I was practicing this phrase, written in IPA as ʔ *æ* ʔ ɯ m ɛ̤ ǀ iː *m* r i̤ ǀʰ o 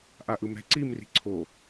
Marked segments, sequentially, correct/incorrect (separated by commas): incorrect, correct